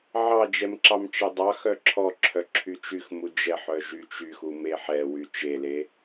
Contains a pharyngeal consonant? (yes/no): yes